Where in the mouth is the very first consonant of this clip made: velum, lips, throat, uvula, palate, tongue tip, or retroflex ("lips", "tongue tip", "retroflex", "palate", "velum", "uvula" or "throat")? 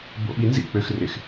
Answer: lips